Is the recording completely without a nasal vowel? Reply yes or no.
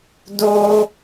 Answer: yes